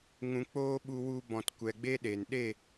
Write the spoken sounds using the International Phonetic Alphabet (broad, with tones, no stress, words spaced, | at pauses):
ŋũ˧ k͡poː˦ɓu˧wu˧ bɔ̃˨tkʷɛ˨ɡ͡be˦ ɗe˨n ɗe˦˨